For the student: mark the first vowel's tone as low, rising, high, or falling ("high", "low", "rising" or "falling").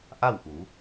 falling